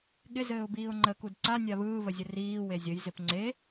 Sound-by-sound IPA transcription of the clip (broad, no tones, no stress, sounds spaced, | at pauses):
ɠ ɪ z ɘː ʊ̯ b iː ʊ̯ ŋ͡ǃ ə k u d ǀ a nʲ a β ɯː β ə zʲ ɘ r iː w e zʲ ə j z ɪ p ŋ͡ǀ e